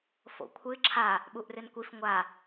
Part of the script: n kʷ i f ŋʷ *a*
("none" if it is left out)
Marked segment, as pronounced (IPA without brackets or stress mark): a